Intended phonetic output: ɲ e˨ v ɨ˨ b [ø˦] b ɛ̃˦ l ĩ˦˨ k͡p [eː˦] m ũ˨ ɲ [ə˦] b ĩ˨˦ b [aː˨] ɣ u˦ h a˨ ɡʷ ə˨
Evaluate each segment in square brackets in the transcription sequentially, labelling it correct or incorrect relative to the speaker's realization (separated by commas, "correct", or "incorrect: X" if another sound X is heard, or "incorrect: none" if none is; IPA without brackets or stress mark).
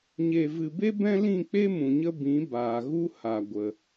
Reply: incorrect: e˦, incorrect: e˦, correct, correct